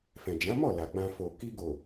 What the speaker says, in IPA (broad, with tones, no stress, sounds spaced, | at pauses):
f ɛ̃˨ d͡ʒ ã˨˦ m ɔ˦˨ l a˨ ɡ͡b ã˧ f o˨ k i˧ ɡ o˨